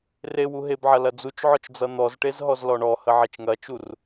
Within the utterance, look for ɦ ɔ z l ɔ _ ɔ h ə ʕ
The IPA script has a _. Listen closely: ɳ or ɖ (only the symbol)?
ɳ